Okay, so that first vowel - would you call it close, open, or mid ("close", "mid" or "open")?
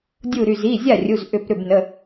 close